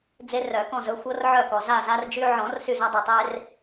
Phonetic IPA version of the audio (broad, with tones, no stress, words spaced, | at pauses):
d͡ze˦rœ˨˩˦kɔ̃˦˨zɵ˦ xʷɤ˦rʕœ˦˨kɔ˨ za˦˨za˦rd͡ʒy˦ ʕɔ̃˨˩˦r sy˦˨za˦dˤœ˨tˤe˦r